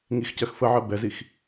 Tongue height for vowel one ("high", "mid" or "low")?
high